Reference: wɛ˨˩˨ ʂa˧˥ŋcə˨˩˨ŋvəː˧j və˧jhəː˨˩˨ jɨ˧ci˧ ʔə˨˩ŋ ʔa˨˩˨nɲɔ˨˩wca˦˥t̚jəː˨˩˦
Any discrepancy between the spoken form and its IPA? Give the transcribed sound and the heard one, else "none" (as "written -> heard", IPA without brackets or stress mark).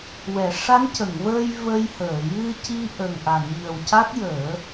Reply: ɔ˨˩ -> ə˨˩